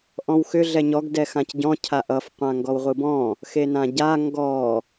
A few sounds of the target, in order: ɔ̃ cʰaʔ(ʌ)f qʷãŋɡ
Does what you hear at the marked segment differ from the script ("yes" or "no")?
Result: no